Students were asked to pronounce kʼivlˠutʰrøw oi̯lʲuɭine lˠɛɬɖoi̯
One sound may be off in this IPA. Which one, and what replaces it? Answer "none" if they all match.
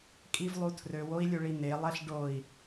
none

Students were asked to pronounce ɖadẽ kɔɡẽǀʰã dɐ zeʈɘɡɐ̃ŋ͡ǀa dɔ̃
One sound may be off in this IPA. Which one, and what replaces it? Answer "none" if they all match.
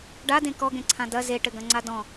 none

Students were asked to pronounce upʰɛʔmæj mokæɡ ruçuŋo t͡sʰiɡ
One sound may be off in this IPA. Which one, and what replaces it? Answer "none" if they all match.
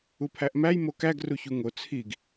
ɛ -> æ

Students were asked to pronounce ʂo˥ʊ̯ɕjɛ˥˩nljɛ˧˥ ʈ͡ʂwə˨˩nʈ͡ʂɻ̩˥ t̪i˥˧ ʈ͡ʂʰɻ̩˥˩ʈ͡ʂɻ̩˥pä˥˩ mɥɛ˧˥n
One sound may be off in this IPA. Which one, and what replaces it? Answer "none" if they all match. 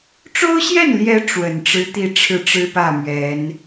ʂ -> ʈ͡ʂ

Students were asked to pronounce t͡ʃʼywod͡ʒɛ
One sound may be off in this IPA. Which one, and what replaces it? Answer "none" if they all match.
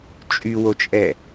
d͡ʒ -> t͡ʃʼ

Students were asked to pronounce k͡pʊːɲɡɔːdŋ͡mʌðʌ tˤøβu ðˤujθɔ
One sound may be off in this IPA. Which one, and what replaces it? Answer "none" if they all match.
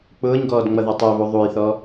none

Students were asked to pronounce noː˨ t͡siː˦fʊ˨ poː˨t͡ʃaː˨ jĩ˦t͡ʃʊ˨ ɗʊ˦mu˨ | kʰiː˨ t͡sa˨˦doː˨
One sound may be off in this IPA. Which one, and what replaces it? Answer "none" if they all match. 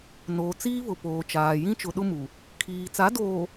f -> β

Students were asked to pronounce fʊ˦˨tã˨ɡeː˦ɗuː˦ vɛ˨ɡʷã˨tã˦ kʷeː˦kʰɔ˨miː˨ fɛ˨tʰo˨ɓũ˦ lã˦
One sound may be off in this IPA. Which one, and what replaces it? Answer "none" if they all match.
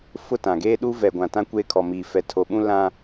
none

